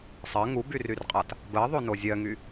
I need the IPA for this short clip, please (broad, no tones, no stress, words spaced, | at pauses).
sˤɜ ŋubyryrqʼat | bɜðˤono zʲɜŋy